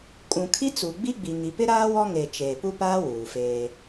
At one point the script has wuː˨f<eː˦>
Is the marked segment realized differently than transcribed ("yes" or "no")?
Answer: no